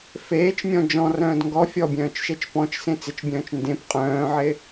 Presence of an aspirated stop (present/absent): absent